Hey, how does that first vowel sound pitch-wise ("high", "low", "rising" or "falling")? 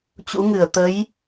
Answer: rising